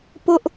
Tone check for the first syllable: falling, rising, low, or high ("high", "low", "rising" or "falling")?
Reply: high